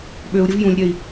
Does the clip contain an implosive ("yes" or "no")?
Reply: yes